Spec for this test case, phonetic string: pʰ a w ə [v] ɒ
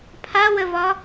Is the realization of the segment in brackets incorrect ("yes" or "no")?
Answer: no